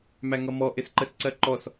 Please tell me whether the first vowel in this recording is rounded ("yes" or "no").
no